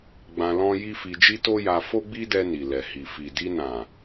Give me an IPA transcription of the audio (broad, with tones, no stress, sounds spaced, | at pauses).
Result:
ɡ͡b ã˧ l ɔ̃˦ j i˦ f i˧ d͡ʒ i˦ t o˦ j a˧ f o˦ ɡ͡b i˦ d ɛ˧ n i˨ l ɛ˨ h i˨ f i˨ d i˧ n ã˨